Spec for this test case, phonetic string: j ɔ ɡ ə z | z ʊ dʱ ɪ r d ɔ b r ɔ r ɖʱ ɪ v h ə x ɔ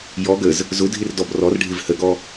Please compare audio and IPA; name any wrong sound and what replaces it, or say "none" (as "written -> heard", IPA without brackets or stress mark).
x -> ɡ